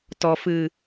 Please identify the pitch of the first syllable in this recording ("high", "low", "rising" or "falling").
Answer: low